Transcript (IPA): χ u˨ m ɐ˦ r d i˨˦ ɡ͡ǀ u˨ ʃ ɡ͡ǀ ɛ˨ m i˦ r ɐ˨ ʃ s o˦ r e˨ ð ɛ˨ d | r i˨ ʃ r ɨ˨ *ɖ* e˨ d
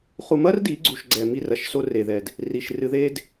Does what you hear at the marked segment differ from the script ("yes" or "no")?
yes